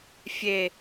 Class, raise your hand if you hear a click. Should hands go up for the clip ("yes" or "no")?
no